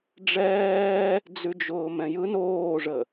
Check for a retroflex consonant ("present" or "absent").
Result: present